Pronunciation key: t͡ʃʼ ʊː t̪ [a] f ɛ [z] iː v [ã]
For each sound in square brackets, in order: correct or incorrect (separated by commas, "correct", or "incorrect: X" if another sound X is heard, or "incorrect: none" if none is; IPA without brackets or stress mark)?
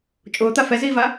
correct, correct, incorrect: a